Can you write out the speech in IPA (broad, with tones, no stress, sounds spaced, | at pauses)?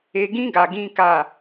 e˧ ɡ ĩ˦ ɡ a˧ ɡ ĩ˦ k a˦˨